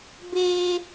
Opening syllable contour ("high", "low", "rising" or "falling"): high